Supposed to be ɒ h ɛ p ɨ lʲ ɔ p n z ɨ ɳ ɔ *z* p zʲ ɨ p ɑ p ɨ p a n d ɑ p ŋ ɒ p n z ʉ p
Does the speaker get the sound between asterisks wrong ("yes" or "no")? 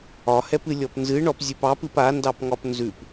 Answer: yes